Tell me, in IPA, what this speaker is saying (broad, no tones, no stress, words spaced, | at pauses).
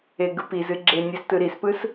eɡɯpizɨ ɡ͡ǁenʲɨs tɯɾispɯs